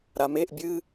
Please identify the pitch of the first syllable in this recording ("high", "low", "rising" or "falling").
low